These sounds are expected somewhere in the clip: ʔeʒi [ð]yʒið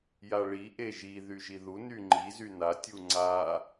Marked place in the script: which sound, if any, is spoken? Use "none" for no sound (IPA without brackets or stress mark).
ð